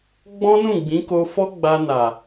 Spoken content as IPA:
ɡ͡b ɔ̃˦ n ũ˦˨ ɡ͡b ĩ˨˦ k o˧ f ɔ˦ ɡ͡b a˧ n a˨

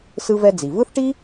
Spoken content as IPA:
s ɯ˧ v ɛ˧ d͡z i˩ v ɯ˥ θ ʈ i˥

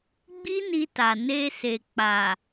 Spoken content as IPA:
ɡ͡b i˦ n i˧ t a˨ n e˧ s e˨ k͡p a˨

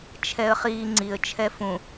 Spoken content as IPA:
t͡ʃʰ ɛ ə̯ χ iː ŋ͡ǀ i ə̯ t͡ʃʰ ɛ f ũ

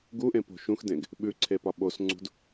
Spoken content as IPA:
ɡ u ʔ ẽ p o̤ ʃ ũ x d ẽ ɡ | ɓ ʉ ǀʰ e p ɒ ɓ o s ŋ͡ǀ ṳ d

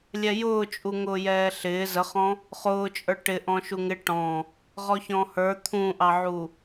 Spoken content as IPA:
lʲ ɛ j ʊː t͡ʃʼ u ŋ ʊː j ɛː ɬ ɪː z ə χ ɔ̃ | χ ʊː t͡ʃʼ ə˞ ʈ ɪ ʔ ɔ̃ ʃ u ŋ ɪ ʈ ɔ̃ | ʁ ɔ ç ɔ̃ h ə˞ t̪ʰ ũ ʔ ɑ ʕ u

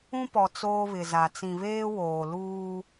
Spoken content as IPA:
ũ˦ p ɔ˨ t͡s oː˦ β ɪ˨ z a˨ t͡s ĩ˨ β eː˦ w oː˨ l uː˦

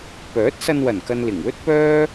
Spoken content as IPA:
p œː˨˥ t̚ s ɐ˧ n w ɐ˨˩ n k ɐ˨ n l ɪ˨˩ ŋ w ɵ˥ t̚ p œː˥

